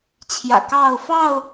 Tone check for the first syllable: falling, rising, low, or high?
low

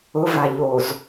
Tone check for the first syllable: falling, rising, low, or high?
rising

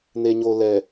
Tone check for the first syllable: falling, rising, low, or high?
low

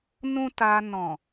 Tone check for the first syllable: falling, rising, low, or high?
high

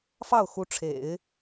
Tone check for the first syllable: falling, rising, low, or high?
falling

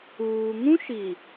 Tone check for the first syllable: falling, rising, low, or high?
low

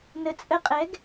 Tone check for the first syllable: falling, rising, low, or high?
low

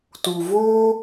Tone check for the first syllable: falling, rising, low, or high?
low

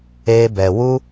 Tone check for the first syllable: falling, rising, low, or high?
high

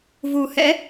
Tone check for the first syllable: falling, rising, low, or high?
low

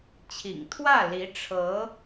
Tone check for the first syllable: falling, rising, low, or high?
low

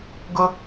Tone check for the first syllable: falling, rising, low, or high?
high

